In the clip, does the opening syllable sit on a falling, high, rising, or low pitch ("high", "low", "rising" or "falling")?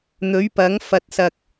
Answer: rising